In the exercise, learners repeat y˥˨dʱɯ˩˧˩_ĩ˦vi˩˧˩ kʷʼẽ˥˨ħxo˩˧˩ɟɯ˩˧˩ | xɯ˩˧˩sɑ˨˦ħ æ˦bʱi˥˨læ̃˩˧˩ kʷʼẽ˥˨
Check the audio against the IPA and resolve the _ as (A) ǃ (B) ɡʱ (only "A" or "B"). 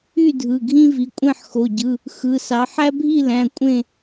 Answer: B